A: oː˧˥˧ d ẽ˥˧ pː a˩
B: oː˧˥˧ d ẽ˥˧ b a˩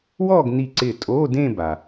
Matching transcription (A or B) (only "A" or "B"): B